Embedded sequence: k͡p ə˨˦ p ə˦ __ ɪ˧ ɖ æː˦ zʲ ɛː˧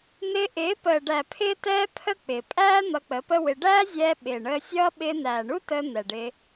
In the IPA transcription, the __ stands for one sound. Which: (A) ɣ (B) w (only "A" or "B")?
B